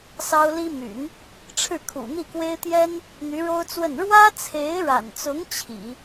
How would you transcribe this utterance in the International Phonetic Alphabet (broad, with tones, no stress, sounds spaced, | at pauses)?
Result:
s ɑ˥ ʊ̯ l i˥ m y̰˨˩˦ n | ʈ͡ʂʰ ɻ̩˥˩ kʰ ṵ˨˩ n̪ i˥˩ k w e˥ ɪ̯ t̪ j ɛ˥ n | n̪ y˧˥ ɻ o˥ ʊ̯ t͡s w ə˥˩ n ɻ w ä˥ t͡sʰ e˧˥ ɪ̯ ɻ a̰˨˩ n t͡s ʊ˧˥ ŋ t͡ɕʰ ḭ˨˩˦